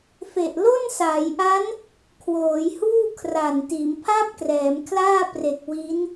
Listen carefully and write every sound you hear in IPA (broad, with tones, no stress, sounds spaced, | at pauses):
f e˨˩ ʔ l o˥˩ n s aː˩˦ j ʔ a˦˥ n | kʰ w oː˩˦ j h uː˥˩ kʰ r a˨˩ n t iː˩˦ m pʰ a˥˩ p̚ k r ɛː˩˦ m kʰ l aː˥˩ p r e˨˩ k̚ w i˦˥ n